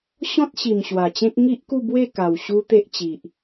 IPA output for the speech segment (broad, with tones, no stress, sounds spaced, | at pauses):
ɕ ɔ̃˦ t̚ ɕ i˨˩ m ɕ w a˨˩ t͡ɕ ẽ˦ k̚ ŋ i˦ ʔ k u˥˧ b w e˥˧ k a˨˩ w ɕ u˦ t̪ e˦ ʔ t͡ɕ i˨ ʔ